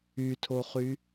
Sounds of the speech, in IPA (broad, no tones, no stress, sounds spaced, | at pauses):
y tʰ o χ y